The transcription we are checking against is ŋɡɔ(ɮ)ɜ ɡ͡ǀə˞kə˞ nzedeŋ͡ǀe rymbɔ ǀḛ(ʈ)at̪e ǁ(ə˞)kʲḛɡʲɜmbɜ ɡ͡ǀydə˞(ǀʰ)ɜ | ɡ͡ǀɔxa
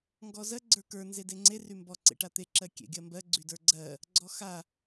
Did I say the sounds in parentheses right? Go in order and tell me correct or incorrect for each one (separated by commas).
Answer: incorrect, correct, incorrect, incorrect